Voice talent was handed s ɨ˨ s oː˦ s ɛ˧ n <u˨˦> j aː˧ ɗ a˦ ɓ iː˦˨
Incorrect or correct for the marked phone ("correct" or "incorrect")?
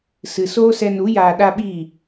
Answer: correct